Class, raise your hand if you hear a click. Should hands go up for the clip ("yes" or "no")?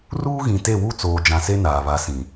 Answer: no